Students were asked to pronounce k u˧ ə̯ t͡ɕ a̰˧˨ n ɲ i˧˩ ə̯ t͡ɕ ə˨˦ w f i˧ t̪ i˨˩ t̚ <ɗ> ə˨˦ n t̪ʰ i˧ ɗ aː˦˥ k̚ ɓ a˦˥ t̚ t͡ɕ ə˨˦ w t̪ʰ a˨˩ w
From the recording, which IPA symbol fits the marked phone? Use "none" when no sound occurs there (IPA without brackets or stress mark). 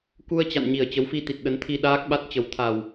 ɗ